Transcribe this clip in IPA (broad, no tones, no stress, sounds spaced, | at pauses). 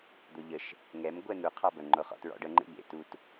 d̪ o ʎ ə ʃ | ŋ ɛ m ɡʷ ɛ n̪ u qʰ ɑ b ə ŋ͡ǃ o χ ɔ̰ t ɹ ɔ̰ ɖ ə ŋ͡ǃ ḛ ʎ ḛ t u t